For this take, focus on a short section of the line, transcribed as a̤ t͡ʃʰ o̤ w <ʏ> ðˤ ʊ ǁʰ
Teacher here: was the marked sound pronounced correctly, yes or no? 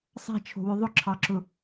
yes